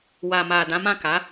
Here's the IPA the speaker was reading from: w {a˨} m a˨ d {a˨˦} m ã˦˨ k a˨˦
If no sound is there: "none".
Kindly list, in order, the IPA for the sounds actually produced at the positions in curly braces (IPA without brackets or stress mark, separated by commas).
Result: a˨, ã˨˦